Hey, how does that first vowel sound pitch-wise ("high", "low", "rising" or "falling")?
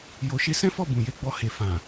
low